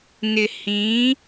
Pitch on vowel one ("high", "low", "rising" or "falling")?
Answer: low